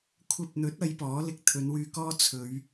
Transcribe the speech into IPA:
kʷʰ ɐ˧ p̚ n̪ ɵ˨˥ t̚ ɐ˨˧ j p ɔː˨˥ l ɪ˧ k̚ t̪ʰ ɵ˨˧ n w yː˧ k ɔː˥ t͡sʰ ɵ˨˧ ɥ

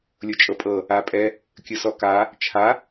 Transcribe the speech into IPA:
lʲ o t͡ʃʼ ɤ pʼ ɤ | a pʼ ɛ | kʲ ɯ s ɔ k a | t͡ʃʰ a

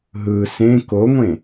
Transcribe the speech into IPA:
ɦ ɯ s ẽ k o ŋʷ ẽ

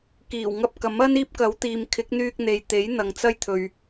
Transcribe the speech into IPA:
k iː˨˩ w ŋ ɐ˧ p̚ k ɐ˨˥ m ɐ˥ n iː˥ p̚ k ɐ˨˥ w t̪ iː˨ m kʰ ɪ˨˥ k̚ n̪ yː˧ k̚ n̪ e˨ j t̪ e˨˥ j n̪ ɐ˨ ŋ t͡s ɐ˥ j t̪ʰ ɵ˨ ɥ

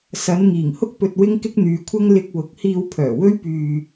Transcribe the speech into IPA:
s ɐ˨˧ n ŋ iː˨˩ ŋ h ʊ˥ k̚ p ɵ˧ t̚ w ɪ˥ ŋ k ɪ˥ k̚ n̪ yː˨˧ kʷʰ ɐ˥ ŋ l ɪ˧ k̚ w ʊ˨ k̚ h iː˧ w pʰ œː˨˩ w ɵ˥ ɥ p yː˧

